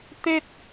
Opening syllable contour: high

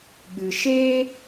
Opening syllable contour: low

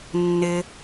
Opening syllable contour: low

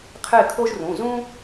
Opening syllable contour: falling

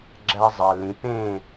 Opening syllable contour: high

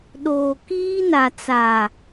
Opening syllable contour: low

